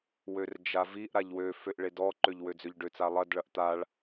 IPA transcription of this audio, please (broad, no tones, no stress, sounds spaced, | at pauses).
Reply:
w ø r d͡ʒ a v i ʔ ɾ a ʎ w ø f ø ʔ ɭ e d ɔ ǃ ø ʎ w ø d͡z ø ʎ ɖ ø t͡s a lˠ ɐ d ɭ ɐ ʔ t̪ a ɭ